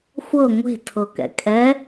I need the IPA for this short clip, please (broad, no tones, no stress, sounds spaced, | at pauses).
xʷ ɤ ŋʷ e̤ tʰ ɤ k ɛ̰ kʼ ɛ